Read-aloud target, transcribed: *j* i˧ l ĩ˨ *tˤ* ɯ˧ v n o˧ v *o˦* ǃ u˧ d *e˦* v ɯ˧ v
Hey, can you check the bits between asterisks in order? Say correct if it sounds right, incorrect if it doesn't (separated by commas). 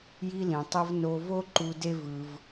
correct, correct, correct, correct